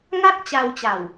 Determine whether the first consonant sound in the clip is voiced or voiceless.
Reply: voiced